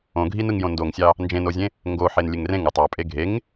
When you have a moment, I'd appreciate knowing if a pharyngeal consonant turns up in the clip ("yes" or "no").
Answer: yes